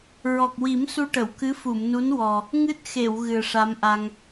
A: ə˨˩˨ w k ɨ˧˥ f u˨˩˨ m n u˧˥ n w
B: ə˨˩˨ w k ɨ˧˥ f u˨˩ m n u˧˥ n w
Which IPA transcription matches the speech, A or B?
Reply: A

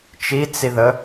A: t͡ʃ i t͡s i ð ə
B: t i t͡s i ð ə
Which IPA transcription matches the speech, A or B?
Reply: A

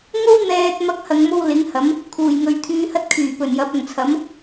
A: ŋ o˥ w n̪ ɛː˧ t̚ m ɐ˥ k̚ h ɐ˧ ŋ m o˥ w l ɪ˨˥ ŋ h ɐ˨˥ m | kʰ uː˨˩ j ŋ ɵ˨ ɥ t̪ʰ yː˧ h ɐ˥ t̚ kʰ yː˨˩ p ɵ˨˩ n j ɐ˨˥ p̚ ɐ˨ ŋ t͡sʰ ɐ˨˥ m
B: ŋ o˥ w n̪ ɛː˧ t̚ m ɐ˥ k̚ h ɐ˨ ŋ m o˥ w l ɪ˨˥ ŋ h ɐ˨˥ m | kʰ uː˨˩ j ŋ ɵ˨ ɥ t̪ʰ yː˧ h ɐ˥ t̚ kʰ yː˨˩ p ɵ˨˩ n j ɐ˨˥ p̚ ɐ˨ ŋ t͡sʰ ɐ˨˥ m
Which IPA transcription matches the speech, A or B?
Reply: A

